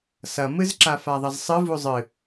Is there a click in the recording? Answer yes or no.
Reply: yes